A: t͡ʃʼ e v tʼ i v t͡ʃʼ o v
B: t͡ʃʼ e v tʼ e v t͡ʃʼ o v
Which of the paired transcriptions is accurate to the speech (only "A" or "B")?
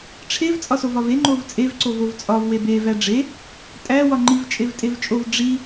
B